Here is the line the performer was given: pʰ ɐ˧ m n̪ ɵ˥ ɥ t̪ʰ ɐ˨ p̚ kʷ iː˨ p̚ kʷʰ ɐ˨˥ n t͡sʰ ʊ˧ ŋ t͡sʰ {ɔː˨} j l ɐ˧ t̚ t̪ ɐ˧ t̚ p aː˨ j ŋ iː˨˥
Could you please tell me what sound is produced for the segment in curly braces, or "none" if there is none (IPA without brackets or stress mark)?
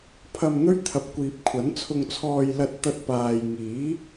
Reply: ɔː˧